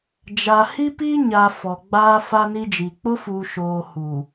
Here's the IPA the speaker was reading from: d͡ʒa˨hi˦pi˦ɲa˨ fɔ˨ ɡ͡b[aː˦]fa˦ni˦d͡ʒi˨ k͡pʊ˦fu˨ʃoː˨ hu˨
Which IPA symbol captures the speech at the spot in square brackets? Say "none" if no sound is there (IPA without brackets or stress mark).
aː˦